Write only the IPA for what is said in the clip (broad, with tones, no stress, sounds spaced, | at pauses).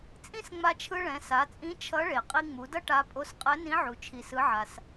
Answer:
t͡sʼ ĩ˥ s ŋ͡m a˧ t͡ʃʰ ɯ˧ ɭ ɛ̃˩˧ s a˩˧ t͡sʼ ĩ˧˥ t͡ʃʰ ʌ˧˥ ɭ e˩ qʼ i˧ ŋ͡m u˩˧ d ʌ˥ ʈ a˧˥ pʼ o˧˥ s qʼ ɛ˧˥ n ĩ˧˥ ʕ u˩ t͡ʃʰ i˩ s ɯ˩˧ ʕ a˩ s